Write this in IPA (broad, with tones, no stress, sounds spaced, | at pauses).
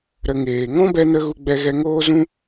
ɾ ə˧ ŋ eː˨ ŋ ɔ̃˦ b ɛ˧ n ə˧ ɣ u˧ ɡ͡b ɛ˧ ɣ ɛ˧ ŋ oː˦ z ũ˦